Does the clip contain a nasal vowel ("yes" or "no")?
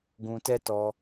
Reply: yes